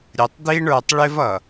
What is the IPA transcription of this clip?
ɾʲ ə˨ tˤ d̪ i˦ ɳ ə˞˨ tˤ ɭ ɪ˦ v ʌ˨

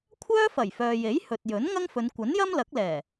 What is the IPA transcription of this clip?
kʷʰ œː˥ f ɐ˨˩ j f œː˨ j e˨˥ j h ɵ˨ t̚ j ɵ˨˥ n ŋ ɐ˥ ŋ f ɵ˨˧ n kʷ ɐ˨˥ n j ɐ˥ m l ɐ˨˥ k̚ l ɛː˨˩

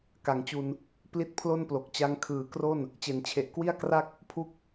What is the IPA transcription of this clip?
k a˩˦ ŋ t͡ɕ u˧ n | p l i˦˥ t̚ pʰ l o˥˩ n p l o˨˩ k̚ t͡ɕ a˧ ŋ kʰ ɯː˨˩ k r o˥˩ n | t͡ɕ e˨˩ n t͡ɕʰ e˨˩ ʔ k w i˥˩ a̯ k r a˥˩ k̚ | pʰ u˦˥ k̚

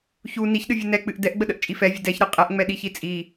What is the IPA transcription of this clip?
ç u n i ç ɗ ɨ vʲ ɨ n ɛ k͡p ɨ ʔ d ɛ ʔ ɡ͡b ə ɗ ə ʔ t͡ʃʼ i f ɛ vʲ ə d ɛ ç ɾ ɨ qʼ ɛ ʔ ŋ͡m ɛ ɗ i ç i t͡sʼ i

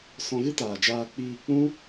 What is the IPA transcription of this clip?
s ɔ̃˧ ɣ ɨ˦ t aː˨ d͡ʒ aː˧ k͡p iː˧ k͡p ũ˦

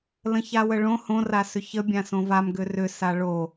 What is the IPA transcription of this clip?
l ə̃ ç a w ə ɭ õ h õ r a s ʏ ç ə bʲ ã s õ v a m ɡ ʏ r ʏ s a ɭ o

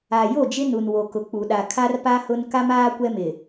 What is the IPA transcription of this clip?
a˨ j o˦˨ d͡ʒ ɪ˦ n u˨ n w o˨ k ʊ˨ k͡p u˨ ɗ a˨ kʰ a˦ r p a˦ h ʊ˦ n k a˦ m aː˦ kʷ ɛ˦ m ɪ˨

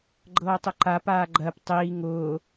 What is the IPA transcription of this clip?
ɡ͡ǃ ɤː tˤ ʊ ǃ a p aː ɡ͡ǃ ɜ p tˤ iː ŋ ʊː

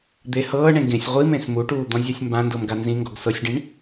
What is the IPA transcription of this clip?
d̪ e h ɤː ɳ ẽ ɡ ẽ sʲ ʁʷ i m ẽ s m u ʈ uː d̪ ɔ̃ zʲ a sʲ m b ã n d ɤ m ɡ a n z ĩ ŋ ɡ ɔ ɡ s ɤ sʲ ɖ ĩ ɳ

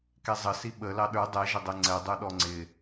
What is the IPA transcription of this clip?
k ɛ zˤ ə s i ɓ ə l ɑ ɗ ə˞ dˤ ɛ ʒ ə dˤ ɛ ŋ͡ǀ ɛ dˤ ə˞ ɗ ɔ ŋ͡ǀ ɪ

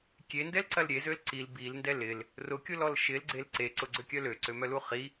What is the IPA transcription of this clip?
kʲ e n d ɛ l ǀ ɐ l ɾʲ e z ø l ǀ i l b i l n d ɛ l ɪ l | r ʊ kʲ ʊ l ɔ l ʃ ɪ l ɡ͡ǀ e l ǀ e ǀ ʊ ɡ͡ǀ ʏ kʲ œ l ø ǀ ø m œ l u χ i

